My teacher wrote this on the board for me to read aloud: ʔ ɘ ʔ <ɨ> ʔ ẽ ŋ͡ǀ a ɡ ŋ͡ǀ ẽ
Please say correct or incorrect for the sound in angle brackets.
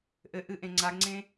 correct